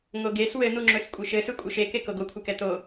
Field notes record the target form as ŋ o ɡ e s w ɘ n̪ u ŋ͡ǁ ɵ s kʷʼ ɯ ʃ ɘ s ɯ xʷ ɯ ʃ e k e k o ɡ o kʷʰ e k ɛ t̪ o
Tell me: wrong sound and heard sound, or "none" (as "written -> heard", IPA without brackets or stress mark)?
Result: xʷ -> kʷʼ